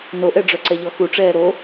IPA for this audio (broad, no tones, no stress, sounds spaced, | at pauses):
n o ʔ ɛ ɖ͡ʐ œ ǀ ɛ ʎ ɔ x u ʈ͡ʂ ɛː ɾ o